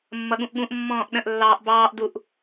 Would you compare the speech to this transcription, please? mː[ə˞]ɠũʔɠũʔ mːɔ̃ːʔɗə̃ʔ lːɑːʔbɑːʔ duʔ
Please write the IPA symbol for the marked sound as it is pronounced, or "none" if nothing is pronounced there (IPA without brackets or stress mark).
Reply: ʌ